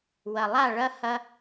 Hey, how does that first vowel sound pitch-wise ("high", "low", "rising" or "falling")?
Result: low